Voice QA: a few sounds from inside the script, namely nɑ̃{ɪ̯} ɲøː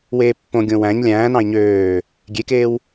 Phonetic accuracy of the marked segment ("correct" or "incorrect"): correct